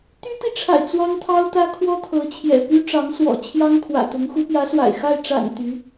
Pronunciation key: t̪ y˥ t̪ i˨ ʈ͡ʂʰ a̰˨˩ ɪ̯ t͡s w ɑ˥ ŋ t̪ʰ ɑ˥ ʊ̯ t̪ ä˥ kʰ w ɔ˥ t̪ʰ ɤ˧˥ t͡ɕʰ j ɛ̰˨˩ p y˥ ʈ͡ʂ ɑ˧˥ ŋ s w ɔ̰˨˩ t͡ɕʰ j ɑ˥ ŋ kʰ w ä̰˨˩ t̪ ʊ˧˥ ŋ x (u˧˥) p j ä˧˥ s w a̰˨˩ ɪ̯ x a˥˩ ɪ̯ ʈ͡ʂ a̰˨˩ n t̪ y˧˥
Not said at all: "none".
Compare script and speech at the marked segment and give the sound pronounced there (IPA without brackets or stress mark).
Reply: u˧˥